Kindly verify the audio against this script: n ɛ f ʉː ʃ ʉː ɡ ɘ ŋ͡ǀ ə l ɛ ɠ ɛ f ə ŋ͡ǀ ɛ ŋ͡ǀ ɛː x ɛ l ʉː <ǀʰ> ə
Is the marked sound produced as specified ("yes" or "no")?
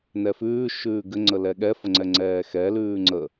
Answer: no